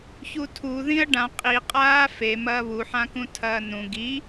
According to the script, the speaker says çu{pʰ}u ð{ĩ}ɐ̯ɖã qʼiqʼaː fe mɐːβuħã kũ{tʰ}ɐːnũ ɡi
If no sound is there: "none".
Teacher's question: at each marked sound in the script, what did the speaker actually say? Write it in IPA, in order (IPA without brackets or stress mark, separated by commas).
tʰ, ĩ, tʰ